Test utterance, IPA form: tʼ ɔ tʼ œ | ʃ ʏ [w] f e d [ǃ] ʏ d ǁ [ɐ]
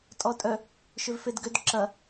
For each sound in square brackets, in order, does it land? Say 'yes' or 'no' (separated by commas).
no, no, yes